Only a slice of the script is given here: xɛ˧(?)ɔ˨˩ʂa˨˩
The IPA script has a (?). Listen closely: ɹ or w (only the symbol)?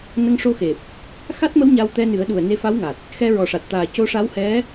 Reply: ɹ